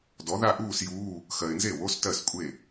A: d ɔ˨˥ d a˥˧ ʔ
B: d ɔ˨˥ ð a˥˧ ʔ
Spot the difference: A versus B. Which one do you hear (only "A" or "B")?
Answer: B